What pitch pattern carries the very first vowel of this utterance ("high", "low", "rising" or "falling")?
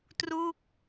falling